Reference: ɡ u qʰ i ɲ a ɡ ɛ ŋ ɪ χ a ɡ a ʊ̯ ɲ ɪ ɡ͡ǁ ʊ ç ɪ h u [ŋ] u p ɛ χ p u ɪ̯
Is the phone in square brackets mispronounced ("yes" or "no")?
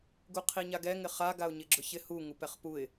no